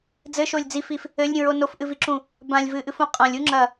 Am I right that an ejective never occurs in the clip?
no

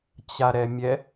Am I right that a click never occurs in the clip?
yes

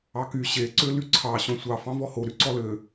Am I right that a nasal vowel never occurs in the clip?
no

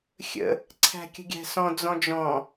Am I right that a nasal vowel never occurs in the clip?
no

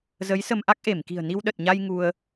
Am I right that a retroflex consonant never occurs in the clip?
yes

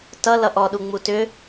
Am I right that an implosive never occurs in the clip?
no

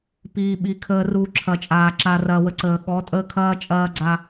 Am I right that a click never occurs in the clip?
no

